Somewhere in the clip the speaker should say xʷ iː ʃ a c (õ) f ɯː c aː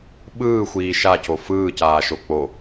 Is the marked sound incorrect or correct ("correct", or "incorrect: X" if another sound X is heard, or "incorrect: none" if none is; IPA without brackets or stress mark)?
incorrect: o